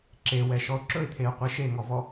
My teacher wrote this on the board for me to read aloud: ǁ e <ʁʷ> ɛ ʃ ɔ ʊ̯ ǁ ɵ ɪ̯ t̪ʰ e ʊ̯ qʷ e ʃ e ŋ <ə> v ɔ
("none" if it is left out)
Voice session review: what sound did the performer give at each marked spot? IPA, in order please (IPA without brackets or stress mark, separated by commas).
w, ɔ